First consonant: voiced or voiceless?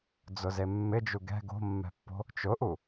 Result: voiced